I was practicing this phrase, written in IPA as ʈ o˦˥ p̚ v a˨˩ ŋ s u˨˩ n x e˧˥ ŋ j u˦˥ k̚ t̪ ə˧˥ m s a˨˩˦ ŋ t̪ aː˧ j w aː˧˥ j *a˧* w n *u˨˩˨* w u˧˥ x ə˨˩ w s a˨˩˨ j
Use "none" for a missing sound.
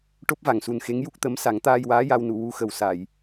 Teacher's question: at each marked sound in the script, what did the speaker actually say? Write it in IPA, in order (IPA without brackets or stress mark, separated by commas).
a˧, u˨˩˨